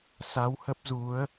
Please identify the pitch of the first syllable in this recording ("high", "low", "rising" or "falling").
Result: rising